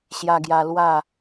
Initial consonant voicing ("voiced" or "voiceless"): voiceless